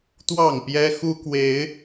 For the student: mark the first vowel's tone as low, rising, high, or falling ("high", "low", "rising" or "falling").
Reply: falling